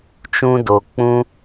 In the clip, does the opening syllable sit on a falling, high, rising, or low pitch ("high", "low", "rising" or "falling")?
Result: high